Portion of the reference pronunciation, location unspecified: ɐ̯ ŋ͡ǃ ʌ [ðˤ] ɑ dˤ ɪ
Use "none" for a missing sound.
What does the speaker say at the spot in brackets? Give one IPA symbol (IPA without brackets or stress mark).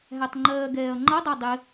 dˤ